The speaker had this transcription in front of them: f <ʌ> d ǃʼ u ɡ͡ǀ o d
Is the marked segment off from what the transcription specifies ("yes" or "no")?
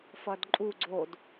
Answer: no